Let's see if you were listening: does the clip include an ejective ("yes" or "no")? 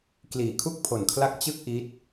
no